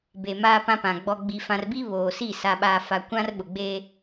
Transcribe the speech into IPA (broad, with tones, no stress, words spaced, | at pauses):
be˨ maː˦pã˦pã˨ ɡ͡bɔ˨ɡ͡bi˨fã˨rbi˦ βoː˨si˦˨ sa˨ɓaː˨fa˨ kʷã˦rɓʊ˨ɡ͡beː˦